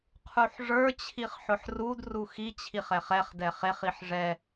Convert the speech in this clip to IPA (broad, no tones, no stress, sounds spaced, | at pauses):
qʰ u ħ ʐ ə˞ t͡ɕʰ i χ ħ ʊ ħ r u d r u x i t͡ɕʰ i χ ɛ χ ɛ χ d ɛ χ e χ i ħ ʐ ɛ